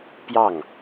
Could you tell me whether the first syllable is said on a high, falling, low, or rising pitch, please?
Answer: falling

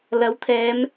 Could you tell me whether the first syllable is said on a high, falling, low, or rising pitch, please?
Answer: rising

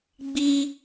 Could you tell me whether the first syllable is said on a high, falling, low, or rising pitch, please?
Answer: high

